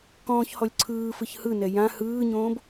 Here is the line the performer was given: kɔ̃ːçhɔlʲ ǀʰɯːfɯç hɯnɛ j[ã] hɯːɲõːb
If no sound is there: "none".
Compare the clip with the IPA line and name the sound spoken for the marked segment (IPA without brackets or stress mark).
ã